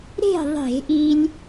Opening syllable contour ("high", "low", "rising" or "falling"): falling